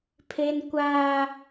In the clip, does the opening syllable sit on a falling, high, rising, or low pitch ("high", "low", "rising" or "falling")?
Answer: high